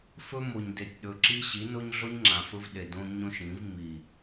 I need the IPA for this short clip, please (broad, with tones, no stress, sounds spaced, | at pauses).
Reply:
f ɵ˦ m o˨ ɲ d e˨ tʲ ɗ ɵ˨ ǁ i˦ ɕ i˨˦ n o˦ ɲ ɮ o˦ ɲ ŋ͡ǁ ã˨ f ɵ˦ v ɗ e˨ d õ˦ ɲ õ˦ ʃ ĩ˨˦ v m i˨